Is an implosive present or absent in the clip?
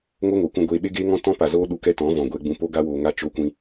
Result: present